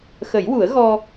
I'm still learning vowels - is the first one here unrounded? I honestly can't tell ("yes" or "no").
yes